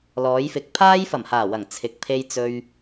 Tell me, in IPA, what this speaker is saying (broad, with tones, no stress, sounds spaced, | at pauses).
l ɔː˨˧ j f ɪ˨˥ k̚ pʰ aː˥ j f ɐ˨˩ m h aː˨˩ w ɐ˨˩ ŋ t͡sʰ ɪ˨ k̚ pʰ e˧ j t͡s ɵ˧ ɥ